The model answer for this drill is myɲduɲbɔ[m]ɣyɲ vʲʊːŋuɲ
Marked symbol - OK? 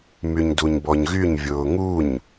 no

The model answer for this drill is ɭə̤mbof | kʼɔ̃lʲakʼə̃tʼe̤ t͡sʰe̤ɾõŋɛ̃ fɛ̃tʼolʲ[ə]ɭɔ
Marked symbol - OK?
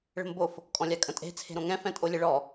yes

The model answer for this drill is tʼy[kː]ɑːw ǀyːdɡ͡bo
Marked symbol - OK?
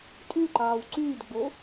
no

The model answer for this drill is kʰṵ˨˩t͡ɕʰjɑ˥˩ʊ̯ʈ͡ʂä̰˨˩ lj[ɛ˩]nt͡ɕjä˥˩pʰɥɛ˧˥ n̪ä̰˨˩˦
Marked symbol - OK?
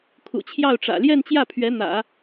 no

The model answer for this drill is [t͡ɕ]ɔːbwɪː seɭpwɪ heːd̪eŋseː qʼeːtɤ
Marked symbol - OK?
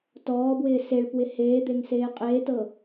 no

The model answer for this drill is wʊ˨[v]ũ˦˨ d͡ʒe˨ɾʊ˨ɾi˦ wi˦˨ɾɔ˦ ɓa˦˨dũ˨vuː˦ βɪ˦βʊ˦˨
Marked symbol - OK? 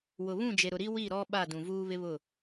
no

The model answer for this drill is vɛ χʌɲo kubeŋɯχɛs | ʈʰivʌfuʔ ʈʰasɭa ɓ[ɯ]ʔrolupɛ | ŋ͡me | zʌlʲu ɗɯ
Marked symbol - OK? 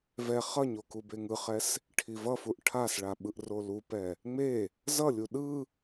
yes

